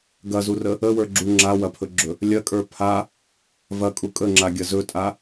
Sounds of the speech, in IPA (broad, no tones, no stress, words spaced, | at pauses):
ɡɐzurə | əwə˞ɡ͡ǁu ŋ͡ǁawɐpʰɵɡ͡ǁɵ | lʲɐkʼə˞ pʰa | vɐkʼu kʼəŋ͡ǁaɡʲɐ zɵtʼa